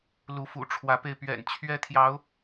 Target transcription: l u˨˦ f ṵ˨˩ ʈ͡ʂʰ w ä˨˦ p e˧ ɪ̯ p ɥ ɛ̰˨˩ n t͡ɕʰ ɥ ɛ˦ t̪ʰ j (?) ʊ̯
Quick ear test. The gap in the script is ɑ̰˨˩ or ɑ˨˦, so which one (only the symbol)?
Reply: ɑ˨˦